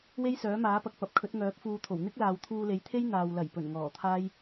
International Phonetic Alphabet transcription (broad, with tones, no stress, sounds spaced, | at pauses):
w e˥ j s œː˨˥ m aː˨˥ p ɐ˨ k̚ p ɐ˨ p̚ kʰ ɵ˨˥ t̚ ŋ œː˨˥ p̚ f uː˧ t̪ʰ o˨˩ w n̪ ɪ˥ k̚ l aː˨ w t̪ʰ uː˧ l e˨˥ j t̪ʰ e˥ j n̪ aː˨ w l ɐ˨˩ j p ɵ˨˩ n ŋ ɔː˨˩ t̪ʰ aː˥ j